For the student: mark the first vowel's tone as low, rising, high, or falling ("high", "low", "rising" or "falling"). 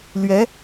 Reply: rising